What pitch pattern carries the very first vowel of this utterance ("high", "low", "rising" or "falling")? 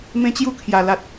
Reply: high